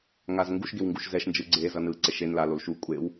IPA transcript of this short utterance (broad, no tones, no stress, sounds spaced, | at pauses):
ŋ a z ŋ ɡ u ʃ ɡ e w ŋ ɡ u ʃ z ɛ ʃ n d͡ʒ ɯ ɡ͡ǀ e z ʌ n ɯ ǀ e ʃ e n l a l o l ʃ u kʷʼ e w